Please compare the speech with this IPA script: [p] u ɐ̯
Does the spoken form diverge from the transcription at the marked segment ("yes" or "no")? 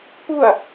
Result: no